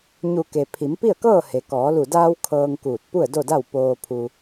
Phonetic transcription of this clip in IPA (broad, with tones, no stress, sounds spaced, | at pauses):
ɲ u˧˩ k e˩ pʰ i˩˧ m p i˥˨ ə̯ k ɤː˥˨ h e˩ k ɔː˩˧ l u˧˩ d aː˧ w kʰ ɤː˧ ŋ k uː˧˩ t̚ p u˥˨ ə̯ d o˥˨ d a˥˨ w p oː˧ pʰ u˧